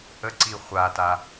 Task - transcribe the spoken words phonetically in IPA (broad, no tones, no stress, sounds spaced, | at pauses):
ʔ ə ǀ i χʷ a t a